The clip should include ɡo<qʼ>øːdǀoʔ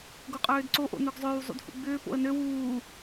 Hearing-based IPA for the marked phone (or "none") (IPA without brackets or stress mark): qʼ